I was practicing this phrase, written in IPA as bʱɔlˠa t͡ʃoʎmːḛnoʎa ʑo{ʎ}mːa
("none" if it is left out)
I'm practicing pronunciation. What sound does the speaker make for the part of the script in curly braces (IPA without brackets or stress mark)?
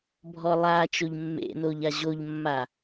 ʎ